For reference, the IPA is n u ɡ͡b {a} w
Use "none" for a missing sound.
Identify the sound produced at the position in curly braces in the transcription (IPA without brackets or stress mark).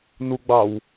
ɑ